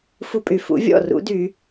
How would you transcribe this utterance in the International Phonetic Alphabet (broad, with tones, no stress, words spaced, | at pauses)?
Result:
fu˦pʼy˨ fṵ˩˥vʲɔ̰˥˩rṵ˩˥dy˨˩˦